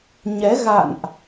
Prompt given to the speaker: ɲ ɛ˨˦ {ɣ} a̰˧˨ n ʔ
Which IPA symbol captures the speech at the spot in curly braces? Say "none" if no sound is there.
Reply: ɣ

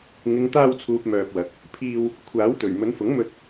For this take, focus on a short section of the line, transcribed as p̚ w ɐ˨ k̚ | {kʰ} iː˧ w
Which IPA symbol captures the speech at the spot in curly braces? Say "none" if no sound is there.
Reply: pʰ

